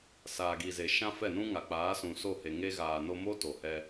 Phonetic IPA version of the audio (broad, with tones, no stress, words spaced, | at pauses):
saː˨ɡi˨ze˨ ʃã˦fɛ˦˨nũ˦ŋa˨ k͡paː˨˦sũ˨so˦˨he˨ ŋe˧ɣaː˨no˧mo˦ to˨hɛ˧